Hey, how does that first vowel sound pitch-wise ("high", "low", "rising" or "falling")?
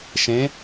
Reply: rising